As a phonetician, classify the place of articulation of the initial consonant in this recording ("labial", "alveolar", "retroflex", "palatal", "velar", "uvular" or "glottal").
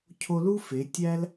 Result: palatal